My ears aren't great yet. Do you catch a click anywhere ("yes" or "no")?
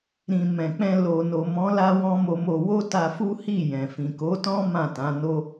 no